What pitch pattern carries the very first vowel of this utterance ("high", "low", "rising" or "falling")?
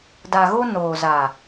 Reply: low